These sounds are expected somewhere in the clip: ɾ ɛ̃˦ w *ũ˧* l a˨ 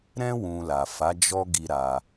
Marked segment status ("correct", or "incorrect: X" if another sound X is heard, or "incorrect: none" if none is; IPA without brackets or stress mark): correct